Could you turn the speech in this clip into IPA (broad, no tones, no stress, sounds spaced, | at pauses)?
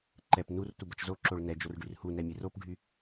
ǃ ɛ p n u r t u b ə t͡ʃ z o ǁ o ɭ n ɛ d͡ʒ o r ɖ y r h u n ɛ mʲ e r o p ɖʱ y